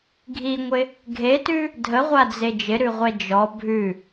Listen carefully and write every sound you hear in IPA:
ɡʱ i ŋʷ ɪ | ɡʱ e t ʉ | dʱ ə ʁʷ a d͡z e d͡ʒ ɪ ɾ ʉ ʁʷ ɛ d͡ʒ ɔ bʱ ʉ

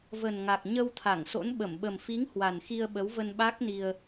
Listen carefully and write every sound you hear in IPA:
v ə˨˩ n ŋ a˨˩ k̚ ɲ ə˧ w t̪ʰ a˧˩ ŋ s o̰˧˥ n ɓ ə˧˩ m ɓ ə˨˩ m f i˨˦ ŋ h w a˨˩ n x i˧ ə̯ ɓ ə˨˦ w v ə˧ n ɓ a˦˥ k̚ n i˧ ə̯

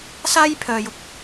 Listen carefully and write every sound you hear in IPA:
s aː˥ j pʰ œː˧ j ʊ˨ k̚

